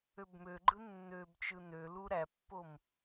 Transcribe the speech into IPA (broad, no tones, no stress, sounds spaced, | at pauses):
ø b m ø ɡ͡ǃ ɯ nː ø b t͡ʃ ɯ n ø l u ɾ æ pː o m